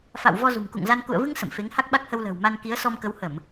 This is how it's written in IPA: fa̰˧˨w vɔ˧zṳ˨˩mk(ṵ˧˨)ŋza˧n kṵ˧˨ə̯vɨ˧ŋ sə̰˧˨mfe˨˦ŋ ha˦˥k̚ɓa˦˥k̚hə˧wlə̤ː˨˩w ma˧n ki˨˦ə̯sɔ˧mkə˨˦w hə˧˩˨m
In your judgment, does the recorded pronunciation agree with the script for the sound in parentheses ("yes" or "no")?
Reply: yes